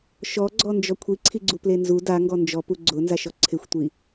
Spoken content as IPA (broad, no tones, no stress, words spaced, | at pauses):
ʃɔɡ͡ǀɔnd͡ʒɔ kʷʰiǀʰiɡ͡ǀuple nzu daŋɡɔ nd͡ʒɔpu ɡ͡ǀʊnzaʃɔ ǀʰɪxʷtʷi